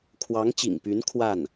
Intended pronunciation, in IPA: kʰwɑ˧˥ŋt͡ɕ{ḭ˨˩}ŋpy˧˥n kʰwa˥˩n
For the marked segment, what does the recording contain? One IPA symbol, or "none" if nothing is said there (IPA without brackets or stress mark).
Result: ḭ˨˩